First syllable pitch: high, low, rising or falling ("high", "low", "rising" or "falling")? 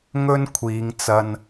high